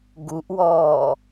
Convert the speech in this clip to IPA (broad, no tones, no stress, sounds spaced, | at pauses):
ɡ u ʔ w ɔː